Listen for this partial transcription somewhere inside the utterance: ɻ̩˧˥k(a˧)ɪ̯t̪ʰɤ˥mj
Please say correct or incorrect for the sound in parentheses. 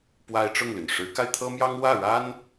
correct